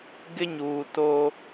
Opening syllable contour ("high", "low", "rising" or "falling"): high